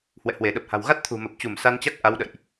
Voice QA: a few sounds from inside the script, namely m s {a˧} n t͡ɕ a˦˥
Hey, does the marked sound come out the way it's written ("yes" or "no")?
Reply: yes